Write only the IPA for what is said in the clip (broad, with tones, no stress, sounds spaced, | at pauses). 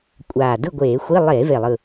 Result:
kʷʼ aː˨˩ d ɯ˥˨ ɡʷ eː˧˩˧ xʷ i˧˥˧ lˠ eː˧˩˧ v e˨˩ lˠ ɯ˨˩